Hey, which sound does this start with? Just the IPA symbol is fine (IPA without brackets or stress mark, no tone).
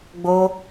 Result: ɡ͡b